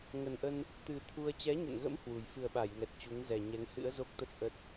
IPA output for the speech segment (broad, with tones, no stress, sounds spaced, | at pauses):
ŋ ə˨˩ n ʔ ə˧ n | t̪ ɨ˨˩ t̪ʰ u˧ ə̯ t͡ɕ ɛ˨˦ ɲ ə̰˧˨ n ɣ ə̰˧˥ m h w u˨˩ j f ɨ˨˩ ə̯ ɓ a˧˩ j ŋ ɛ˨˩ t̚ t͡ɕ u˨˦ ŋ z ɛ˨˩ ɲ ɛ˨˦ ŋ h ɨ̰˧˥ ə̯ z o˦˥ k̚ t̪ ə˦˥ t̚ ʔ ə˦˥ t̚